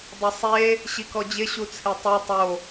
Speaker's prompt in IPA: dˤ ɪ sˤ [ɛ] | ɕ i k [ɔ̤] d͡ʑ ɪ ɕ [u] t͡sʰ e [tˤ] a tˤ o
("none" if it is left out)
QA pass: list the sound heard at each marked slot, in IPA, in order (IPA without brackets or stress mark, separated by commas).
e, ɔ, u, tˤ